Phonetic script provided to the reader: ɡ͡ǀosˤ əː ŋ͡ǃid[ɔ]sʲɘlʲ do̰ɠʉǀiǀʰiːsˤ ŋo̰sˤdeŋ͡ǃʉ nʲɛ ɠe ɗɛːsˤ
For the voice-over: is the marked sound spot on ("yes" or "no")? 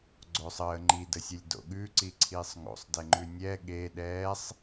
no